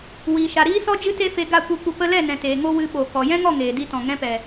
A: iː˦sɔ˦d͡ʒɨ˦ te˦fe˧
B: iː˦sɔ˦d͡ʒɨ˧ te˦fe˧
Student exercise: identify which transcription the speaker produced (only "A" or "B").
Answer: A